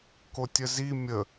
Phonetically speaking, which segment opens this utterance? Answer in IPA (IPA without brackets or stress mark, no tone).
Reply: k